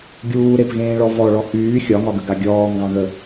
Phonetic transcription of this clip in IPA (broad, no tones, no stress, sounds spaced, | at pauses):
ɡʲ uː ɾ e p ɣ ẽː ɭ ɔ v ɔ ɭ ɔ h yː xʲ ɒ ŋ ɒ ɡ ə ɡ a ɡʲ ɔː ŋ ɡ ɑ̃ ɣ ə